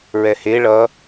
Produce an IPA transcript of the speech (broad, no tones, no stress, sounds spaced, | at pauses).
ɹ ɛ h e ɭ ʌ